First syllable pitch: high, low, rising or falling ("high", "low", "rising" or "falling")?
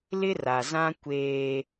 high